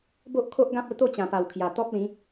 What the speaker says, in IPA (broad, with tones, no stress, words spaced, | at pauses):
bo˦ʔkʰo˦ʔɡã˦p̚ə˧ t̪o˥˧t͡ɕã˨˩pa˨˩w kʰja˨˩t̪ɔ˦p̚lĩ˨˦